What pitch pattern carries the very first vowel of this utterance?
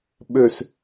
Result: low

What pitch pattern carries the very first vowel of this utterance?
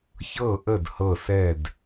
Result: falling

